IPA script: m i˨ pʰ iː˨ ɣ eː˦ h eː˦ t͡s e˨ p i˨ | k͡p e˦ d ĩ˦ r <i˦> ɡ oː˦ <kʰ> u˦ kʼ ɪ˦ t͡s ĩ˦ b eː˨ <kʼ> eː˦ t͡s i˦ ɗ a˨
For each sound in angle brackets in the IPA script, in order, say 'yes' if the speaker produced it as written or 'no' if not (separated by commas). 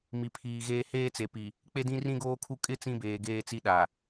no, yes, no